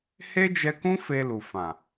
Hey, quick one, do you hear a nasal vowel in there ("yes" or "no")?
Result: yes